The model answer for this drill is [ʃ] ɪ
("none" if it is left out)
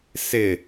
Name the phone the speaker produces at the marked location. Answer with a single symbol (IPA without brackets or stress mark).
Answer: s